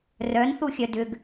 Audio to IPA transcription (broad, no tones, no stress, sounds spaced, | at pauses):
r œ n θ u xʲ œ d ʏ ɡ